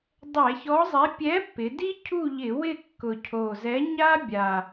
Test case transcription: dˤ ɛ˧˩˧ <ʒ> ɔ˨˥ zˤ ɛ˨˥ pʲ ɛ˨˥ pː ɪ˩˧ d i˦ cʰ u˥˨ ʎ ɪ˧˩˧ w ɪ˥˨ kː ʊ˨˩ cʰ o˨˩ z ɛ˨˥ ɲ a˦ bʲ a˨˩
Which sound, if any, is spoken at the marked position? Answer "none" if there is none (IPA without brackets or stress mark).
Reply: ç